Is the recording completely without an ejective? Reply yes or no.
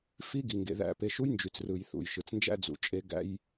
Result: no